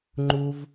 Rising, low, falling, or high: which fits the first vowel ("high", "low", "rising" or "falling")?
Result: high